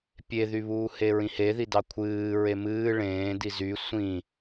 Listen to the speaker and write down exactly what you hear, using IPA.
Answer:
pʲ e ð y β uː h e ɹ ĩ h e ð i d ɑ kʷʰ ɨː ɹ e m ɨː ɭ ẽː d i z y sʷ ĩ

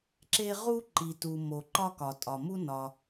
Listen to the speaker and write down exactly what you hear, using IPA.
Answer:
ǁ e˥ ʁ u˥ ǃ i˩ t u˩ m o˩ ǃ ɒ˥ k ɒ˩ tʼ ɒ˩ m u˥ n ɒ˩

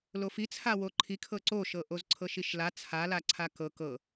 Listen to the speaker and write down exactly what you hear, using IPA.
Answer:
l o f i t͡sʰ a w o ǃʰ i kʰ ɤ ǀ o ʃ ɤ ʔ o z ǀʰ ɤ ʃ i ʃ l a t͡sʰ a l a ǀʰ a k ɤ k ɤ

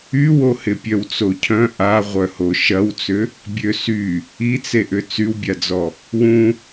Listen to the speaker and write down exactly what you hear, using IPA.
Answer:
y w o h ɪ pʲ œ w t͡s o cʰ œ̃ ʔ a ʁʷ œ h o ʃ ɐ w t͡s ʏ | bʲ ø s y | i t͡s e ʔ ʏ t͡s y w bʲ a d͡z ɔ | w ũ

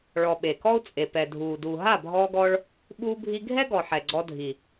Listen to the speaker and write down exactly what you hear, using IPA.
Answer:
ɭ ɔ˨ ɓ e˨ k ɔ˦ u̯ t͡sʼ e˨ p ɛ˨ dʱ uː˨ d uː˨ ɦ a˦˨ bʱ ɔː˧ ɡ ɔ˧ ɭ | ɓ uː˧ bʱ i˧ ɡʱ ɛ˦ ɡ ɔ˨ ħ ɛ˨ ɡ͡ǀ ɔ˧ dʱ i˨

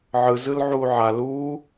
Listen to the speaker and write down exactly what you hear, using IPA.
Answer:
ʕ ɯ z ɯ l ʕ uː ʕ a l uː

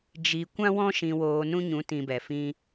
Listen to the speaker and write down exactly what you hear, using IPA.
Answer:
d͡ʒ i˧ kʷ ã˦ w ɔ̃˦ ʃ ĩ˧ w oː˧ n ũ˦ ɲ ũ˨˦ t ĩ˧ b ɛ˨ f ĩ˦

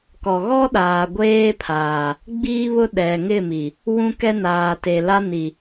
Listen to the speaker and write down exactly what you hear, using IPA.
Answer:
k ɔ˨ ɣ ɔ˦ ɗ aː˨ ɡʷ eː˦ pʰ aː˨ | ɡ͡b iː˦ β ʊ˦ ɗ ɛ˨ ŋ ɪ˦˨ m i˨ | w ũ˦ k ɛ˦ n aː˨ t e˨ l a˦ n i˨

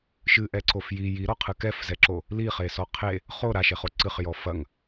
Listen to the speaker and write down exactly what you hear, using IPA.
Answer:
ʃ ɨ ʔ ɛ ǀ o f j i j i ɾ ɔ qʰ ɨ k ɛ f z ɛ ǁ o | l i χ e s ɔ qʰ e | χ o ɾ a ʃ e χ o ǀ ɨ χ j ɔ f ɐ ŋ

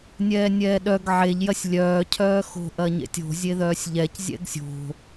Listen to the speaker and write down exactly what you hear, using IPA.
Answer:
nʲ ɛː nʲ ɛː ɗ œ ɡ ʕ e ʎ j ɐ sʲ lʲ œː cʰ œː x o̤ ʔ ɐ ɲ ḛ tʲ o̤ zʲ e ð œː sʲ ʎ ɛ c zʲ ɛ̰ ɡ sʲ o̤

